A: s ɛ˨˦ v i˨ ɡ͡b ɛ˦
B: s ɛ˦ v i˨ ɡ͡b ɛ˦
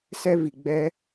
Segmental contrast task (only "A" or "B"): B